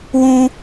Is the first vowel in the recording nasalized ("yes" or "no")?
yes